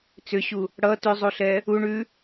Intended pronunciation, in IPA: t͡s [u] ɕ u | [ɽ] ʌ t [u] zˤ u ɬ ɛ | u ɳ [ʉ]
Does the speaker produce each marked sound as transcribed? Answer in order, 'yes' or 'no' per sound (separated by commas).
no, yes, no, yes